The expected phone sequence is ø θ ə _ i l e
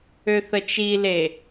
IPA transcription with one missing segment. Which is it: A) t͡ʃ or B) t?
A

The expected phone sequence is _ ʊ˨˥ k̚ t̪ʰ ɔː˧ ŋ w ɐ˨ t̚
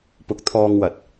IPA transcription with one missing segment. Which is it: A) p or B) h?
A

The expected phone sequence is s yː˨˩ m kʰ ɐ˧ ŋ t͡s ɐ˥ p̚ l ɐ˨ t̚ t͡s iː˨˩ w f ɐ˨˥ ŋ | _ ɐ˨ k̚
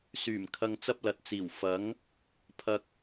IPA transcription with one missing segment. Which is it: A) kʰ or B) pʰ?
B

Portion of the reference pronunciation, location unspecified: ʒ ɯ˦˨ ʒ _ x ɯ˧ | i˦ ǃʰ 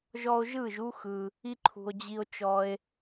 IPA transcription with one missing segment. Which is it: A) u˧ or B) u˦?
B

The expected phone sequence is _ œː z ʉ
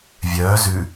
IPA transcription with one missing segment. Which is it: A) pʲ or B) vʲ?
B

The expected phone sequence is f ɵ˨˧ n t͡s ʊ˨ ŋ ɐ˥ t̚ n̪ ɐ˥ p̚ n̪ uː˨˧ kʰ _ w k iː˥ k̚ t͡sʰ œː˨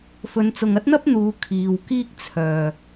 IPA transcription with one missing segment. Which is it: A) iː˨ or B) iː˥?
A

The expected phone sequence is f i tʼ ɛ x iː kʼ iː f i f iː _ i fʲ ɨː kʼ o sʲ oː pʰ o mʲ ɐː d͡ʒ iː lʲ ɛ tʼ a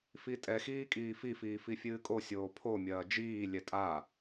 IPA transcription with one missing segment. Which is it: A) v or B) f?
B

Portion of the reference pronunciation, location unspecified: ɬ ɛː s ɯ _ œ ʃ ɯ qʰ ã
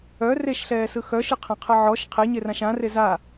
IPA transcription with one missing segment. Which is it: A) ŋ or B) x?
B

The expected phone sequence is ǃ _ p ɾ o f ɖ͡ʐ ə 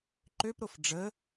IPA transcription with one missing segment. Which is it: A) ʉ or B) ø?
B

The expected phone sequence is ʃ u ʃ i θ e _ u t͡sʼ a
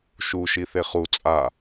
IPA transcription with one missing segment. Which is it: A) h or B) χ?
B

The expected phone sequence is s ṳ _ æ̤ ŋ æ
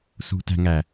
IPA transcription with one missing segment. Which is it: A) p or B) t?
B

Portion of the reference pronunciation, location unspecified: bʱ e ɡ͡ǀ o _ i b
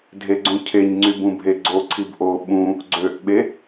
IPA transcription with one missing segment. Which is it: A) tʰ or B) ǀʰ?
B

